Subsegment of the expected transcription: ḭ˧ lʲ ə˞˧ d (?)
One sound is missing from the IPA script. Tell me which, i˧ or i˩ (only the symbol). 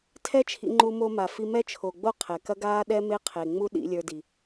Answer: i˩